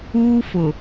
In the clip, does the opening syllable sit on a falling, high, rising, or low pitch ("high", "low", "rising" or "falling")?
high